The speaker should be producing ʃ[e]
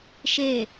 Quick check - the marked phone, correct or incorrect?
correct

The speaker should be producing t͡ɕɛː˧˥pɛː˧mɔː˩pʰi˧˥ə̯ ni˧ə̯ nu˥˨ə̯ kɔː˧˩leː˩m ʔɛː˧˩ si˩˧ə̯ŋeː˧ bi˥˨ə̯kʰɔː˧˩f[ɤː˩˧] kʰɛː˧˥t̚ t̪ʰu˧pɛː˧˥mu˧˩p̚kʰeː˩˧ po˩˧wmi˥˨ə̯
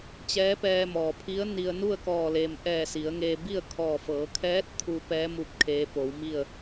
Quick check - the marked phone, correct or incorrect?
correct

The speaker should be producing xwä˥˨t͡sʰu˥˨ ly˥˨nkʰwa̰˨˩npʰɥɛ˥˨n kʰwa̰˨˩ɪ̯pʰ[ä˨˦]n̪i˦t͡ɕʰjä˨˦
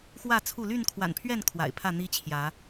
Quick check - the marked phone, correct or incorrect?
incorrect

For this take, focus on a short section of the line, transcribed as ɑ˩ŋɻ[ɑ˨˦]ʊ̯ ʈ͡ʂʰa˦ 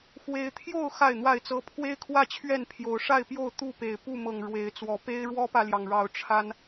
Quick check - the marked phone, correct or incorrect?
correct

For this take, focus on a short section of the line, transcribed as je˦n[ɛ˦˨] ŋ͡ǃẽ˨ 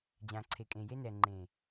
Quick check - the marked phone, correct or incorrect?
incorrect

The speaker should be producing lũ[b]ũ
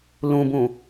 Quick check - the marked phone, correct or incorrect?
correct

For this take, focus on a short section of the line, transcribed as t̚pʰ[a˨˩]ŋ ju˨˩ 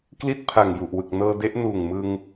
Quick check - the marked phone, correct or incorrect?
correct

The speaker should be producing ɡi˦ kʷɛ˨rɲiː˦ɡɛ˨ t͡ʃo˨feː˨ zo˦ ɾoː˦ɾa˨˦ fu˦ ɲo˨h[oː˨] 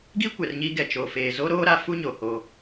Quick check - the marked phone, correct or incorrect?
incorrect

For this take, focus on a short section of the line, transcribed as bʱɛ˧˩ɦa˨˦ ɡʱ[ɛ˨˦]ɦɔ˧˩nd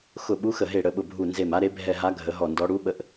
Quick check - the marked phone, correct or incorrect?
incorrect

